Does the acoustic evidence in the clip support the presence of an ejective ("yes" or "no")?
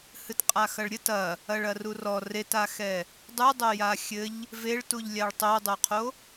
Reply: yes